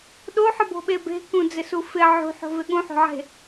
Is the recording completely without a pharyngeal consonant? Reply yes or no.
no